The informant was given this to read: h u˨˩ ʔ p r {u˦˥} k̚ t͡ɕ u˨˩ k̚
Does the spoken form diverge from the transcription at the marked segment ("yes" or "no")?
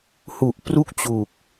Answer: yes